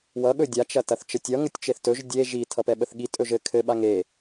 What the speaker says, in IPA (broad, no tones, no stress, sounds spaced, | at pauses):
w ʌ ɠ ɵ dʲ a t͡ʃ ɐ t ɐ θ t͡ʃ ə tʲ ʌ ŋ ə tʲ t͡ʃ e θ t ɵ ʒ dʲ e ʒ i tʰ ʌ p ɛ ɓ ə θ ɠ i tʼ ɵ ʒ ɘ kʰ ɘ ɓ a ŋ e